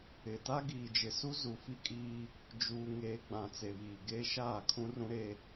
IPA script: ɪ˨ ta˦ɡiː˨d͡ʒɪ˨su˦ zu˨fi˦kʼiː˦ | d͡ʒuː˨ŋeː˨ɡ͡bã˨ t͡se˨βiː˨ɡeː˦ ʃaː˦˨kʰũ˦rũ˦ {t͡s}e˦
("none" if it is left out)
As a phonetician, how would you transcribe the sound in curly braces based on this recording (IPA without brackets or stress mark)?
ɾ